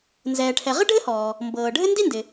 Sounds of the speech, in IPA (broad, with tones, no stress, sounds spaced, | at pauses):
n z ɛː˩ ʈʰ ɛ˩ ʁ ɘ˥ ɖʱ ɘ˥ h ɔː˩ | m b ɤː˩ ɖʱ ɘ˥ n d i˥ n d ɪ˩